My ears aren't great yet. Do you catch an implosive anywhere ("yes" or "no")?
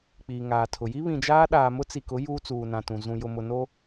yes